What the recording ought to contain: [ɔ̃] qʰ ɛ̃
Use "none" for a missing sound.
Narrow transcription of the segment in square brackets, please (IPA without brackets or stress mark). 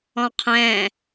ɔ̃